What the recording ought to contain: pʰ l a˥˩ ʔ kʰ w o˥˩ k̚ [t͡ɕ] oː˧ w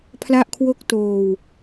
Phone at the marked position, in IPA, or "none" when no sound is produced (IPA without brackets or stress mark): t